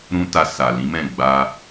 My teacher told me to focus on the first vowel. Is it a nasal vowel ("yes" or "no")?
yes